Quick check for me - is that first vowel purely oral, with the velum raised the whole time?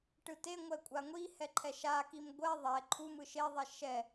yes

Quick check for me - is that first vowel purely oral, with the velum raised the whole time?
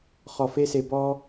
yes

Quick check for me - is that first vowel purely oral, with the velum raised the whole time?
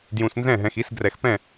no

